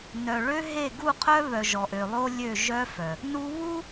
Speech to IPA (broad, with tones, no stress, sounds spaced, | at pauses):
n œ˨ ɭ ø˦ ɦ e˦˨ ɡ u˦˨ qʰ œ˦ β œ˨ ʒ ɔ˨ ʔ ø˨ lˠ o˦ lʲ ø˦˨ ʒ œ˦ f œ˨ | n u˦ β u˦